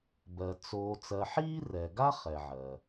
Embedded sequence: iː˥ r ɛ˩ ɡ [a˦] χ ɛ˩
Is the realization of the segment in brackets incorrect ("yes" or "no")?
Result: no